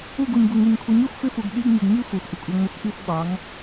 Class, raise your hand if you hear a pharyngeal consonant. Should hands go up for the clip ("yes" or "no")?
no